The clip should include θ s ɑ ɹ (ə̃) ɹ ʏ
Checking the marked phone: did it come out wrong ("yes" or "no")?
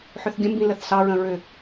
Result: no